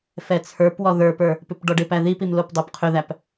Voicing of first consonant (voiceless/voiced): voiceless